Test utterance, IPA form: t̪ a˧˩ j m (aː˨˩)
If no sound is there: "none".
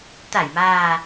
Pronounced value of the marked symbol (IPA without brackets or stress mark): aː˨˩